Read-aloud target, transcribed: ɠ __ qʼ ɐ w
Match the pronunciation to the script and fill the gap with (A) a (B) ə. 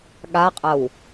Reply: A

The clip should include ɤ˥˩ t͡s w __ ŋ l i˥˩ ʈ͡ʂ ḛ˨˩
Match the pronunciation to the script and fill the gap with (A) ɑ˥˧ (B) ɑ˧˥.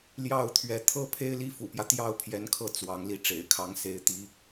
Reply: B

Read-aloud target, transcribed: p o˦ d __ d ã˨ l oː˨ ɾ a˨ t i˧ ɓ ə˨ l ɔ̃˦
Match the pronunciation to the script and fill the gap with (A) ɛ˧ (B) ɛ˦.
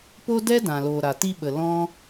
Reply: B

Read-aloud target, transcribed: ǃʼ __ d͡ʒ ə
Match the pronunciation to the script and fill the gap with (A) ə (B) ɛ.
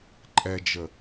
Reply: B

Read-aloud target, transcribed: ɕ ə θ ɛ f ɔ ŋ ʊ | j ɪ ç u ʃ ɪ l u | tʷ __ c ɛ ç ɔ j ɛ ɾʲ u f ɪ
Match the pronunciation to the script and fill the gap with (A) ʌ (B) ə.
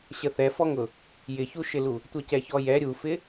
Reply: A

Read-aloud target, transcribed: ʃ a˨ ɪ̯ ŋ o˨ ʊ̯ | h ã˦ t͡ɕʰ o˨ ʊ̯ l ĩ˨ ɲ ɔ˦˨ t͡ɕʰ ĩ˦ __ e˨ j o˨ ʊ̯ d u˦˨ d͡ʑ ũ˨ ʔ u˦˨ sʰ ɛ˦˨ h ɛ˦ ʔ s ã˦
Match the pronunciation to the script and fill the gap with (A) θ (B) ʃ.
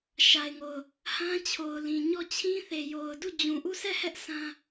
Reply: A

